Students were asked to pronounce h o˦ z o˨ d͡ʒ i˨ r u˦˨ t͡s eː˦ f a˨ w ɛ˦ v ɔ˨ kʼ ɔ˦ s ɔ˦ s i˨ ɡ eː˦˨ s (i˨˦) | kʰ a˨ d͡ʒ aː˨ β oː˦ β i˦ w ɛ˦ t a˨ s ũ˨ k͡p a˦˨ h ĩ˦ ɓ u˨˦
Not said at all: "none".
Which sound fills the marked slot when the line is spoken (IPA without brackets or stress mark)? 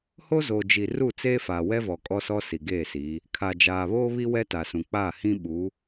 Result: i˨˦